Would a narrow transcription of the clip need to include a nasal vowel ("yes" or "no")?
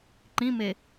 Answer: yes